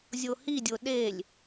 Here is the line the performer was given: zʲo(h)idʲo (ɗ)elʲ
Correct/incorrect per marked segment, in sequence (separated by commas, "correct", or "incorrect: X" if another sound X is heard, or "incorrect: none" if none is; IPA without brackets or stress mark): correct, correct